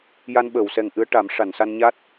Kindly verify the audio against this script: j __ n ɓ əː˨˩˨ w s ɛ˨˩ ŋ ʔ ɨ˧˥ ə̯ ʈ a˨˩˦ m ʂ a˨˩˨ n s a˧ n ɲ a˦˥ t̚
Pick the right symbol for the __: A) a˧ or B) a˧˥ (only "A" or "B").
A